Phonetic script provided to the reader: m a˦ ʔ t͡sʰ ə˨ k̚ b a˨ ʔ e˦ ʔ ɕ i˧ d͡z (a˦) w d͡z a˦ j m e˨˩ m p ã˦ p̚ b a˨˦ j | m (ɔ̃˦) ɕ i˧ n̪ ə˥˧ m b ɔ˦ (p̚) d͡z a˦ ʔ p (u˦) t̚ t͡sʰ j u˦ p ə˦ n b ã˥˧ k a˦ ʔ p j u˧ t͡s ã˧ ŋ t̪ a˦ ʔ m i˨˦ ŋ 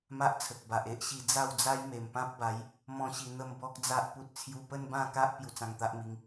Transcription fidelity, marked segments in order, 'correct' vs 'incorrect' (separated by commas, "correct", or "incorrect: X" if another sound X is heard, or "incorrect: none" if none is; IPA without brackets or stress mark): incorrect: a˥˧, correct, incorrect: k̚, correct